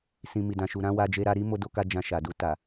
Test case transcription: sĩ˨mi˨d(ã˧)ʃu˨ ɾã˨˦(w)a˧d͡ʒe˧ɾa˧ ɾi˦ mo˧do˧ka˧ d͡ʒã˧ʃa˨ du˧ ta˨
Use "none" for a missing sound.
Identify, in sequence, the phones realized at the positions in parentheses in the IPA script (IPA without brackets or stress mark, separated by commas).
ã˨, w